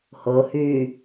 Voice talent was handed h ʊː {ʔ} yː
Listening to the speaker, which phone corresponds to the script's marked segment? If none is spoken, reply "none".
h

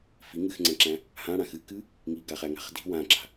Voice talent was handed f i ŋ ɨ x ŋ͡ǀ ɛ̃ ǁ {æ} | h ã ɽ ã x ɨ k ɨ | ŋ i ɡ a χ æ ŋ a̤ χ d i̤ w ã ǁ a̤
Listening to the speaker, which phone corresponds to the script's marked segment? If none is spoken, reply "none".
æ̃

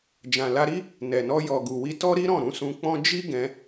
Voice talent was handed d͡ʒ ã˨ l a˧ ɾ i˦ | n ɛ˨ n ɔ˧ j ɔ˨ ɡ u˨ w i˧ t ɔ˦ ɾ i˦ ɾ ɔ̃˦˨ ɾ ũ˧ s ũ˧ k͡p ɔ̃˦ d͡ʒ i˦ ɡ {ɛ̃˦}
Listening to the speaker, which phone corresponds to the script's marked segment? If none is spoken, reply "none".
ɛ̃˧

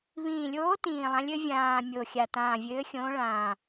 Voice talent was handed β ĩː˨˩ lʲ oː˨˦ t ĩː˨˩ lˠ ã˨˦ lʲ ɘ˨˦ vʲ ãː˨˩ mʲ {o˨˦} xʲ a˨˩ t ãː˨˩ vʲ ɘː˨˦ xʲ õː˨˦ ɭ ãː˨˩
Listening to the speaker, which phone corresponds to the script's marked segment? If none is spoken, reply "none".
o˨˩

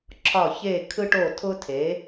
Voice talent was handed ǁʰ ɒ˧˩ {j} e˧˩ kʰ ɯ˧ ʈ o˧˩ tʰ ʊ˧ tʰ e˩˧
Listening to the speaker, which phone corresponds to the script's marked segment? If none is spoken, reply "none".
ç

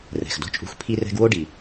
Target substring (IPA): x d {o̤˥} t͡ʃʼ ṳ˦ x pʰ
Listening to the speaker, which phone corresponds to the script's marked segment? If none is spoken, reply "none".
o̤˥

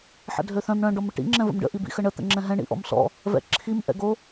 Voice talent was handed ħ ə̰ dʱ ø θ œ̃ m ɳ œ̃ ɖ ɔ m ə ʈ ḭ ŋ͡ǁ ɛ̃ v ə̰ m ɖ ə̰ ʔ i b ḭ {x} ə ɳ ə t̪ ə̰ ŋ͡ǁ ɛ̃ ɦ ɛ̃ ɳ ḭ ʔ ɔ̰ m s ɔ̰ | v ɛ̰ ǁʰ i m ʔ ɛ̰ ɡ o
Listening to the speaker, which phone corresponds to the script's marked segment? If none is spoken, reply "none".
x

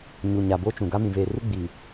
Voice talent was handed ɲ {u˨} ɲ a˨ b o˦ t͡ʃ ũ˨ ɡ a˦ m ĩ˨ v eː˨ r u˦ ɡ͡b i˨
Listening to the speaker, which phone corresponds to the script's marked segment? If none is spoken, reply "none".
u˨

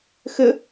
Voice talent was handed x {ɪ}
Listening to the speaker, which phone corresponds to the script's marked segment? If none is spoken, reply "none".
ɪ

